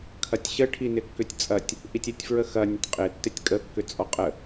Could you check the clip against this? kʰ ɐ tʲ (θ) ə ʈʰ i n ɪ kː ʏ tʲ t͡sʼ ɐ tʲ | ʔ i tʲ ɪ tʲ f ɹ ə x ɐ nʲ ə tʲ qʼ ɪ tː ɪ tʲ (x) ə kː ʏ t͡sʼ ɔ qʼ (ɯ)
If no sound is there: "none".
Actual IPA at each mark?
ɕ, kʼ, ə

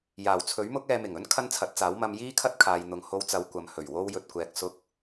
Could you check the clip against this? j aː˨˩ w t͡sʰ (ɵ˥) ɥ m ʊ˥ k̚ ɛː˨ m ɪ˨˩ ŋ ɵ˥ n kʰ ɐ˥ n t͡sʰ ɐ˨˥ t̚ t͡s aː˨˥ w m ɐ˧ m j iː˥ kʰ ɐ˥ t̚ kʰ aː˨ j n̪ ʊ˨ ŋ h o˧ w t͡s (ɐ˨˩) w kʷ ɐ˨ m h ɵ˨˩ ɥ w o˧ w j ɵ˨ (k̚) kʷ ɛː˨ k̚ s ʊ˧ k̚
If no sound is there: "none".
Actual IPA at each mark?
ɵ˨˥, ɐ˨˧, t̚

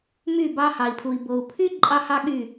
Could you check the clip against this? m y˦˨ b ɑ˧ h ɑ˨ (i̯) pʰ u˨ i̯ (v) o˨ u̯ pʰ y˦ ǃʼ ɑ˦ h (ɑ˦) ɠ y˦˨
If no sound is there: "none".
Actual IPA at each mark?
i̯, b, ɑ˦

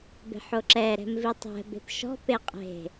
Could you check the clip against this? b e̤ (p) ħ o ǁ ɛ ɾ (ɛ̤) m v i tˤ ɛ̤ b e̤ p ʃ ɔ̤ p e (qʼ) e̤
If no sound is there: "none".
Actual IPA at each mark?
none, ɛ̤, qʼ

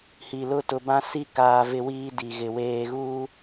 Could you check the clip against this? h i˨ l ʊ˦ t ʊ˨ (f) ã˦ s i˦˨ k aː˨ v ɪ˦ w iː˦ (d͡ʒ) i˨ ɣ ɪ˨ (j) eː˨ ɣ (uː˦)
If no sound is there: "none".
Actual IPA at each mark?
b, d, w, uː˦

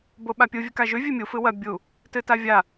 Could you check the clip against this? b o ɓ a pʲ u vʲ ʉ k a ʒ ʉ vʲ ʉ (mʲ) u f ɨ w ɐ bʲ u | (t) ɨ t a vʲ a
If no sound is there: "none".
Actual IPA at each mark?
mʲ, t

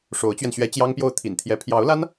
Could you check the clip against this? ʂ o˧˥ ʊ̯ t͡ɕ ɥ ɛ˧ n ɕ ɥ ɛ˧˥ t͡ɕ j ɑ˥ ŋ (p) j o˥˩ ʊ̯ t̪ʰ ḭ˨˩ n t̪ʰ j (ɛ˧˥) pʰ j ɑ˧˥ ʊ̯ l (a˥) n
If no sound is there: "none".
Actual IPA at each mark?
p, ɛ˧˥, a˥

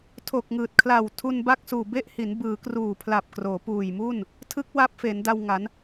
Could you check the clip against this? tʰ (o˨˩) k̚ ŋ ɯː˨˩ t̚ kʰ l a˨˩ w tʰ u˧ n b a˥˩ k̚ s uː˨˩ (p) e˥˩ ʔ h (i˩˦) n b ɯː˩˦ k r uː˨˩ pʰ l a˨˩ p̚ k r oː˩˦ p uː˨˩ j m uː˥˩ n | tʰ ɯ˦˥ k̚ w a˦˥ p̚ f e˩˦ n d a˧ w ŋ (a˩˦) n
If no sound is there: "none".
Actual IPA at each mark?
o˨˩, b, i˩˦, a˩˦

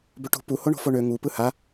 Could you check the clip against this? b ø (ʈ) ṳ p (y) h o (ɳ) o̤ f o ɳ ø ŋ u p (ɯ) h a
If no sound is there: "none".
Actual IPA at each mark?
ʈ, u, ɳ, ɯ

